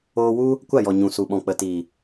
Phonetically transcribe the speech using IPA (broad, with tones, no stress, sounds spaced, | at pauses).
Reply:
oː˧ w u˦ | kʷ a˦˨ j ɔ˨ ɲ ũ˨ s u˨ ɓ ɔ̃˨ k͡p ə˨ t i˨